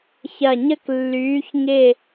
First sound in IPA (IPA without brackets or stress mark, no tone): ç